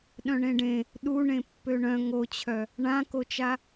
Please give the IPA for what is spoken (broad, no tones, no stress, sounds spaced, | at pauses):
ɗ œ̃ ɳ ẽ ɖ ẽ | ɗ u ɳ ẽ pː ø ɳ œ̃ ŋ o t͡ɕʰ œ | ɳ ã k o t͡ʃ a